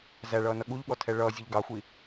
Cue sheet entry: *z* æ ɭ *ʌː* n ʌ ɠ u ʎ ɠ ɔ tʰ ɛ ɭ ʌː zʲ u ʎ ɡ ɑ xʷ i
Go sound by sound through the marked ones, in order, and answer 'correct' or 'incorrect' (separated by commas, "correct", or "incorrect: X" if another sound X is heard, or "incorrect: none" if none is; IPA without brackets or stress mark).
correct, correct